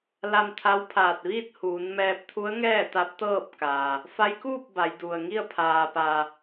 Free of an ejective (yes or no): yes